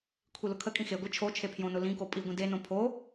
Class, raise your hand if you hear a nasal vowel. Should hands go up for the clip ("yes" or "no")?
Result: yes